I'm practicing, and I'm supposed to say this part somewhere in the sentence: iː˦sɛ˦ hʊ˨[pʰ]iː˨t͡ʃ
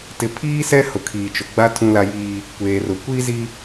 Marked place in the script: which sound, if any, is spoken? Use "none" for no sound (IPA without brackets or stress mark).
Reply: kʰ